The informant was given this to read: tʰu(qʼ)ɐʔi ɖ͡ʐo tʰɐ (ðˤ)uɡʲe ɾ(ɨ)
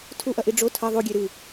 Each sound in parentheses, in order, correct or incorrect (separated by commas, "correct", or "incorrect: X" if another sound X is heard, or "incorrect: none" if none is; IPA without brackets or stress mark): incorrect: ʔ, correct, correct